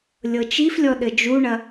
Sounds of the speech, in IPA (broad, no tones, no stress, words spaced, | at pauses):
lʲɤt͡ʃiflʲɔ ɗɘd͡ʒuɳɐ